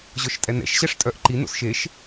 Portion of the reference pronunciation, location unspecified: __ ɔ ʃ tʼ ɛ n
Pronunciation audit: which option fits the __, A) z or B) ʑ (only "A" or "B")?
B